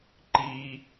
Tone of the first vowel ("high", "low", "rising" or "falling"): low